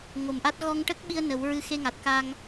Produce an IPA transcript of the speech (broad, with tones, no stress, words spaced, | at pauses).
ŋo˨˩mʔa˦˥t̚ ɣɔ˧ŋʈə˦˥k̚ɓi˧ə̯ nə˨˩˦wɹɨ˧˥xe˧ ŋa˨˩t̚ka˧ŋ